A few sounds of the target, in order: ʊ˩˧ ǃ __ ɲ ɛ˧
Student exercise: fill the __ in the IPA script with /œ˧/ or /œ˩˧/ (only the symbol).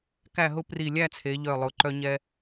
œ˧